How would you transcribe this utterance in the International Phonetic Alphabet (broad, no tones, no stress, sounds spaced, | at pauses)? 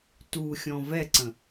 t u xʲ ɔ̃ v ɛ ǀ ə̃